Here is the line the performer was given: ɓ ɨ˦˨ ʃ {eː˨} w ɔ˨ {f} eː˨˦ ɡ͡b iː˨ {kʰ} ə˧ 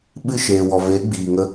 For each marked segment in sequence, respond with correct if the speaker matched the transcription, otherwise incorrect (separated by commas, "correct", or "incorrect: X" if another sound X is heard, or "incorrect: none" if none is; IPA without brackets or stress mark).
correct, incorrect: v, incorrect: ŋ